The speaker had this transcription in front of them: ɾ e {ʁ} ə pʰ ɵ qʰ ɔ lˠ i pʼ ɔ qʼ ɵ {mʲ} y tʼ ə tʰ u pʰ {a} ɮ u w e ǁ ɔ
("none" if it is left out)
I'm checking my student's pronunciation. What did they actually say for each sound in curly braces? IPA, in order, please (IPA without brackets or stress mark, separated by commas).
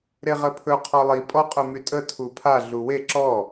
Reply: ʁ, m, a